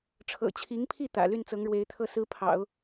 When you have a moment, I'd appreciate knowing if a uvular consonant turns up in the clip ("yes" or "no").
no